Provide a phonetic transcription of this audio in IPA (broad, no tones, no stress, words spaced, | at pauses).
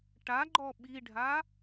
ʈaɡ͡ǃɔ ɓiɖʱa